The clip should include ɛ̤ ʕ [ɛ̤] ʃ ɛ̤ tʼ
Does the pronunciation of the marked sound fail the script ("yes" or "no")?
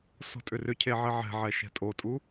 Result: yes